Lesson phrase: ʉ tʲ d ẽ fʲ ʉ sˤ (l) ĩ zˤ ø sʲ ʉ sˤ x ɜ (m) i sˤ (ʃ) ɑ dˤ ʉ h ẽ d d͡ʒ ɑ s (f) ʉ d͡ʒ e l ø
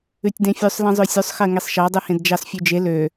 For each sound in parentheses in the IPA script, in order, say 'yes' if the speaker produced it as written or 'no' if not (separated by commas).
yes, no, yes, no